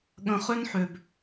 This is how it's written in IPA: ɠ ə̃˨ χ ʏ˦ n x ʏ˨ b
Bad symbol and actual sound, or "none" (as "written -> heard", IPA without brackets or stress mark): x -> ħ